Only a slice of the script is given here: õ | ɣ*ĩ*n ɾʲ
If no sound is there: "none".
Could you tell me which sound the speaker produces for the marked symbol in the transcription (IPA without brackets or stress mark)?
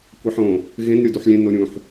ẽ